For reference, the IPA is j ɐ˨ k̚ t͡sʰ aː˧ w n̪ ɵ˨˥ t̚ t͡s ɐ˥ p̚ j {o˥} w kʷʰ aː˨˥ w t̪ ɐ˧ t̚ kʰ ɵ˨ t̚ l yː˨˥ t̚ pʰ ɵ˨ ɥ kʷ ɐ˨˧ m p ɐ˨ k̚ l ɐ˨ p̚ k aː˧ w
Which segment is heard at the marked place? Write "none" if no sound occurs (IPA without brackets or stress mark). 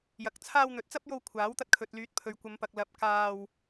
o˧